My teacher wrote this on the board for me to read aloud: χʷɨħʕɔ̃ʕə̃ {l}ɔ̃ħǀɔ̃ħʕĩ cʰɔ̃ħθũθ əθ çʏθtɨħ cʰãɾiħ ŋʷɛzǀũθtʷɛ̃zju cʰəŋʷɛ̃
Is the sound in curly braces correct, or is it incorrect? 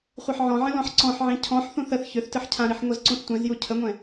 correct